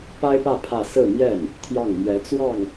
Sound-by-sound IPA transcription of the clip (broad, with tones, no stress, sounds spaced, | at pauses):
p a˥ ɪ̯ p ä˥˧ pʰ ä˥˧ s ɹ̩˥˧ m j ɛ˥˩ n | t̪ʰ j ɑ˥˩ ŋ m ɥ ɛ˧˥ t͡s w ɑ˥˩ ŋ